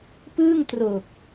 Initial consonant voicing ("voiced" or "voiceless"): voiceless